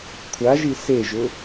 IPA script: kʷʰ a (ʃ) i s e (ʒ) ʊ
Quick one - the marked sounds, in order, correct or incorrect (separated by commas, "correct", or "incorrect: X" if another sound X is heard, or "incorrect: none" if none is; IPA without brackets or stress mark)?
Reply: incorrect: ʒ, correct